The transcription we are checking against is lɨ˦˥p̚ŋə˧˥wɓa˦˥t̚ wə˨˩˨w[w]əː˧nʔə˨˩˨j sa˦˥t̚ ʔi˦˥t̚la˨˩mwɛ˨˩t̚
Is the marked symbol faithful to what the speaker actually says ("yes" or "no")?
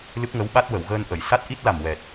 no